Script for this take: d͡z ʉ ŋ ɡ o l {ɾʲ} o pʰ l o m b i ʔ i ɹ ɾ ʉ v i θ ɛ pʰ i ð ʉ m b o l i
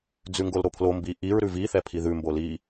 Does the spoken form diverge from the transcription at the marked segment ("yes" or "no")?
yes